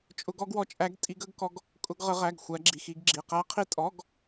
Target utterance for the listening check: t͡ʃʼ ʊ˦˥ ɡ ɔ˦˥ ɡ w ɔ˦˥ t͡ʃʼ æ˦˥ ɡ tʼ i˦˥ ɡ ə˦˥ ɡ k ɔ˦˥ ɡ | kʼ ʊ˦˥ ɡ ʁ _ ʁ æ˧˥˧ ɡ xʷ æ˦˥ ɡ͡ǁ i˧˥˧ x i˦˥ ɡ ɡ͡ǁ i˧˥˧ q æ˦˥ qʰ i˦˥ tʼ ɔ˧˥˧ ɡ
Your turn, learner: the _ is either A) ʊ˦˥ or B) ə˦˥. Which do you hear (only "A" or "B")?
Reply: B